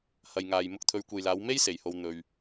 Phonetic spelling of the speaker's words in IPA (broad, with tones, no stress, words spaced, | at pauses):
hɐ˨jŋaː˨j mʊ˧k̚t̪ʰɵ˨˧ɥkʷe˨jlaː˨˧w me˥j se˨jho˧w n̪ɵ˨ɥ